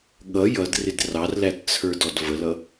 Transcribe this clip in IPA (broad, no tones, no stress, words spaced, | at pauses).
ɠʌ jʌd rɪdrɑrlæt t͡sʰə˞dɔdvəlʌ